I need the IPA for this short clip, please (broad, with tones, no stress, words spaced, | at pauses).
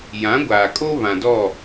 jã˨˦ɡʷaː˨kʼo˦ βã˨dɔ˦˨